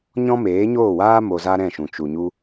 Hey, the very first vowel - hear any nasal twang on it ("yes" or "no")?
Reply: yes